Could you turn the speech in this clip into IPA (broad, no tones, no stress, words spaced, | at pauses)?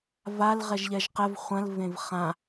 val ʁɛʒʎɛʒqɛv χʷɐ̃l vẽvχã